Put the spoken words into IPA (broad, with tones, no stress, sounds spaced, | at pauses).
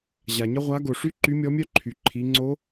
ʑ a˩ ɲ ə˥ ʁʷ a˧˥ ɡ o˩ ʂ y˥ ǃ y˧˥ mʲ ɔ˧˥ mʲ œ˥ ǃʰ y˩ ǃʰ i˩˧ ŋ͡ǀ o˧˥